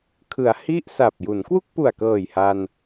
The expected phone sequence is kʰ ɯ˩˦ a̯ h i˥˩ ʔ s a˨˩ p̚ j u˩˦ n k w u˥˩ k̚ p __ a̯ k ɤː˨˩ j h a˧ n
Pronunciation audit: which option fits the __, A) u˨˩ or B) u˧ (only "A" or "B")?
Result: A